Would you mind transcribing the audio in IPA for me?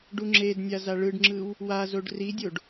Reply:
ɖ u ŋ͡ǁ e d nʲ a z a ɭ ɯ ɖ ŋ͡ǁ ɯ w | w a z o ɖ r i dʲ o ɖ

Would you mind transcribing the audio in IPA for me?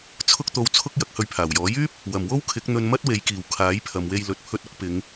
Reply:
t͡sʰ ʊ˥ k̚ t̪ o˧ w t͡sʰ ʊ˥ k̚ j ɐ˨˥ k̚ h ɵ˧ ɥ pʰ aː˨˩ w j ɔː˨˥ j yː˥ p̚ | w ɐ˨˩ m w o˥ w kʰ ɪ˨˥ k̚ n̪ ɵ˧ n m ɐ˥ t̚ w e˨˧ j k iː˨˩ w kʰ aː˨˥ j pʰ ɐ˨ m w e˧ j l ɵ˨ t̚ pʰ ɵ˧ t̚ ʊ˨˥ k̚ p ɪ˨˧ ŋ

